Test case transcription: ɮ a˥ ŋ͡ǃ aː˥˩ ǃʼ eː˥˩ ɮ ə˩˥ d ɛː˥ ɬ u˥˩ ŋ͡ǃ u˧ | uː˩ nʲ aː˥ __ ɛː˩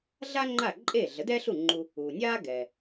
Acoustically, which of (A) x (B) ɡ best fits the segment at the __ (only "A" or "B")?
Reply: B